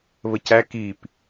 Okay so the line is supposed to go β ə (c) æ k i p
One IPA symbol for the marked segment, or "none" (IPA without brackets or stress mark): c